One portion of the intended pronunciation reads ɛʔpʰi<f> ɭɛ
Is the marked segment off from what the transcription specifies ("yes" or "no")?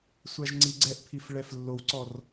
no